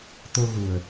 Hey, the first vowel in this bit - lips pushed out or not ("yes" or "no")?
yes